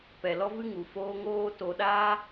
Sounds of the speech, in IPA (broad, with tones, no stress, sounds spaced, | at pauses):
p ɛ˨ l ɔ˦ v ɨ˦ ŋ u˨ f oː˦ ŋ oː˦ t o˧ ɗ aː˦